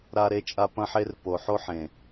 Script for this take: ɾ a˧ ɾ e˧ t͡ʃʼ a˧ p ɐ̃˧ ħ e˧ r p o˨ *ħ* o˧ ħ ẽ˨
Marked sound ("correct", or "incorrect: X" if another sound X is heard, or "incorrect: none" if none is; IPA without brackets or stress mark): correct